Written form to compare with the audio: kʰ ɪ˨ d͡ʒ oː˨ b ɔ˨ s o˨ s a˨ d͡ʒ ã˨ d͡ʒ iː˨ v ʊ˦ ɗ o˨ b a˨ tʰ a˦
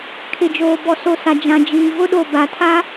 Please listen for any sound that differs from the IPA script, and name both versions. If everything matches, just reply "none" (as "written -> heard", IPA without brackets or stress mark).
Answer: none